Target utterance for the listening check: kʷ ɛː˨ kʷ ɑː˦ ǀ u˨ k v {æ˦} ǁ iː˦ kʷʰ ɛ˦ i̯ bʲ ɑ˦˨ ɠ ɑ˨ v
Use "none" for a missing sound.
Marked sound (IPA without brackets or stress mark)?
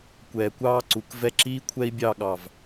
ɛ˦